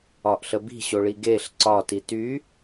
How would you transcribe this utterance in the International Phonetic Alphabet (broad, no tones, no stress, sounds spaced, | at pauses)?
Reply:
ɒ ʔ ɬ ə b i̤ ɕ o ɭ i ɡ e ɬ ǀ ɒ t i t y